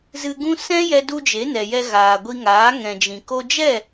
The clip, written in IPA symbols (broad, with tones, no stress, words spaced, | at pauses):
zɨ˧ ɡũ˦ sɛ̃˦jɛ˧du˧ d͡ʒe˨˦nɛ˨jɛ˧ ɣaː˨ɡʷi˧ŋaː˨˦ ŋɛ̃˨d͡ʒĩ˨ ko˧d͡ʒɛ˦˨